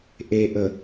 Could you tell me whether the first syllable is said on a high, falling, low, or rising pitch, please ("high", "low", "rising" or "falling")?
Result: low